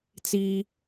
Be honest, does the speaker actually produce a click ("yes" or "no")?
no